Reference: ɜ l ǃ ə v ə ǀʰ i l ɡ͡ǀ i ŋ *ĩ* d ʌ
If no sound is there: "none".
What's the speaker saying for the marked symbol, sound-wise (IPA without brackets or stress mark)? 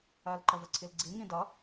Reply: ĩ